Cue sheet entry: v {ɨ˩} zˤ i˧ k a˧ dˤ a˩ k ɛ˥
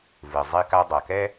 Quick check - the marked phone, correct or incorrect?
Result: correct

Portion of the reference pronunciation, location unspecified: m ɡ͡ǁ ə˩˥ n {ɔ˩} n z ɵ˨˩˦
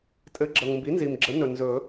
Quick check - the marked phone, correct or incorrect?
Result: incorrect: ɵ˩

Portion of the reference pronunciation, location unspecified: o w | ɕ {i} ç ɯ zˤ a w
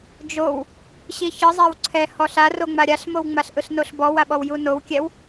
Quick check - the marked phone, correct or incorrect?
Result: correct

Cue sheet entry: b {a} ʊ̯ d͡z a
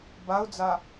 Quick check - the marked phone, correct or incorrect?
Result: correct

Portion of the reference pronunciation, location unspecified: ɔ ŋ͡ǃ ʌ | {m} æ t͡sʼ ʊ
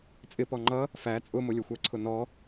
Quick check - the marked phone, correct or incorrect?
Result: incorrect: f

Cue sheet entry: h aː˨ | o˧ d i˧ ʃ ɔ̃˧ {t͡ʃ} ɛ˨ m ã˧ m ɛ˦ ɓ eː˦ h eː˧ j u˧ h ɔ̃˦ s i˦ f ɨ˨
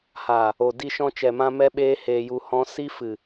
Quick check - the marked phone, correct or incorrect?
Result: correct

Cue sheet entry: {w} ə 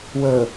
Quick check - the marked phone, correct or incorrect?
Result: correct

